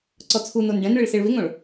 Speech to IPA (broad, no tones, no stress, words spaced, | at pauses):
ǀɔt͡sʰunon ɖɛ̃nɭɪɭ seɭβɪŋõɭ